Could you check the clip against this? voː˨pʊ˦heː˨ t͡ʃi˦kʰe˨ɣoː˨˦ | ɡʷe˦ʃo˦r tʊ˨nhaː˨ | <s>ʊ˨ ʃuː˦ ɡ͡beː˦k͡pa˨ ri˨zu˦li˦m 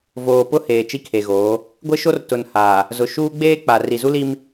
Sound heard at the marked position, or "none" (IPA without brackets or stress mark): z